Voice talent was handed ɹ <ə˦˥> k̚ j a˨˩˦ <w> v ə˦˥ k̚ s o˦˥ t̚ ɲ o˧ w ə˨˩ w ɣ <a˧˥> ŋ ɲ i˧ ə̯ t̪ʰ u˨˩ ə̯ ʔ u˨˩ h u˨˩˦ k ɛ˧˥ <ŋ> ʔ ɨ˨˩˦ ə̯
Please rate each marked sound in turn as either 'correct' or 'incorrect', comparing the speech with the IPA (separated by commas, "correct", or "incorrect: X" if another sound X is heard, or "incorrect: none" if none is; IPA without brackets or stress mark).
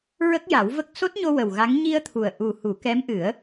correct, correct, correct, incorrect: m